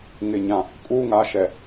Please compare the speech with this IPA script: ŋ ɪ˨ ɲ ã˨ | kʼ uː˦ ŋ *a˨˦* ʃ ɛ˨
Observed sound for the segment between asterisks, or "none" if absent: a˨˦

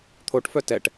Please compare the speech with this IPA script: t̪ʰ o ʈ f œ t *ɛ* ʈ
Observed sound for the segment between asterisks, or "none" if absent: ɛ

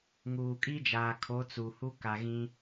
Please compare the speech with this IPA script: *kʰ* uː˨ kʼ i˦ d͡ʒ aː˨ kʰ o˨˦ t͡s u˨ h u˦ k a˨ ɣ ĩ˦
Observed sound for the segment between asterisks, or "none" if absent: ŋ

